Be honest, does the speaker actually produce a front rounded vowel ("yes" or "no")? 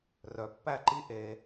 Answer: yes